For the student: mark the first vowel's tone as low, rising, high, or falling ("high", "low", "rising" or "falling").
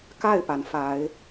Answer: falling